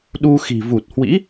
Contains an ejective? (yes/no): no